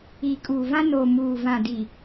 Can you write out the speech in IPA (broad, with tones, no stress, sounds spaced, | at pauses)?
iː˨ kʼ uː˨ v ã˦ n o˨ m uː˨ v ã˨ d i˨